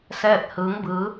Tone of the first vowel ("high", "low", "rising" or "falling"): falling